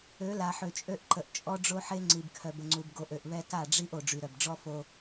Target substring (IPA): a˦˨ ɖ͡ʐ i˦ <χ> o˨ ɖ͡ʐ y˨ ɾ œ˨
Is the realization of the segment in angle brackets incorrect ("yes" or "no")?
yes